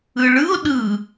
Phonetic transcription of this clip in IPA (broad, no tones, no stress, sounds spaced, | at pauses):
ɯ ɭ ɯ ʊ̯ ɗ ɯ